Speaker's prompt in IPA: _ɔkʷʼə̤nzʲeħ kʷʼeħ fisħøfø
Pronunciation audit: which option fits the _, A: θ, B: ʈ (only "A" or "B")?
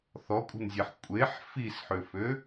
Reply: A